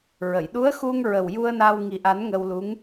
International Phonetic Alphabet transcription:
ɹ ə˨˩˨ j ɗ u˧˥ ə̯ x u˧ ŋ ɹ ə˨˩ w j u˧ ə̯ n a˧ w ŋ i˨˩ ʔ a˨˩˦ n ŋ ə˧ w l u˧˥ ŋ

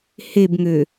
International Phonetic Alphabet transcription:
h e b ŋ ø

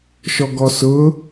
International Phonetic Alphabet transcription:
ʃ ɔ ɡ ɔ s ʊ

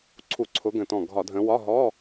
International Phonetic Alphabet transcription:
ǀʰ u˧˩˧ ǀʰ ʊ˨˦ ɡ ə̃˧˩ t ɔ̃˧˩ ɡʱ ɒ˧˩˧ dʱ ə̃˨˦ w ɒ˧˥˧ ɦ ɔ˧˥˧

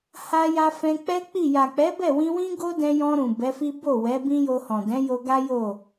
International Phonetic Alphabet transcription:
h a˧ j a˧ f ɛ̃˧ k͡p ɛ˦ k͡p i˦˨ j a˨ k͡p ɛ˨˦ b ɛ˦˨ w ĩ˧ w ĩ˦ ɡ o˦ d ɛ̃˧ j ɔ̃˧ ɾ ũ˨ b ɛ˨˦ f i˦ b o˦˨ w ɛ˨˦ b ĩ˦ j o˧ h ɔ̃˨ d ɛ̃˨˦ j o˧ ɡ a˦ j o˦˨

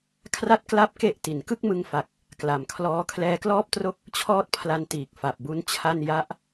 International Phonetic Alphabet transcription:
kʰ r a˥˩ t̚ k l a˥˩ p̚ k e˥˩ ʔ t i˩˦ n k ɯ˥˩ k̚ m ɯ˧ ŋ f a˨˩ k̚ | k l a˨˩ m kʰ l ɔː˦˥ kʰ l ɛː˧ k l ɔː˥˩ p̚ t r o˥˩ k̚ | t͡ɕʰ ɔː˥˩ t̚ pʰ l a˧ n t iː˨˩ k̚ f a˨˩ p̚ b u˦˥ n t͡ɕʰ a˥˩ n j a˦˥ ʔ

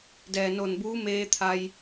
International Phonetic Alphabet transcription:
d ɛː˩ n o˧˩ n b uː˧˥ m eː˧ t̪ʰ a˧ j

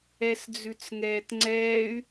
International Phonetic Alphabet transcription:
ɛ s d͡z ʉ t͡s ŋ ɛː t ŋ͡ǀ ɛː y̯

